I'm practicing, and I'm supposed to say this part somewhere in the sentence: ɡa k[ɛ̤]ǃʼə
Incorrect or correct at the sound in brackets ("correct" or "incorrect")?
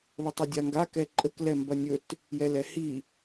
incorrect